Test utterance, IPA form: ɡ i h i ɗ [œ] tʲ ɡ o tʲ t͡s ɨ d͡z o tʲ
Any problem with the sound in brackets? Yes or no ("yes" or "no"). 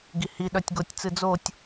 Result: no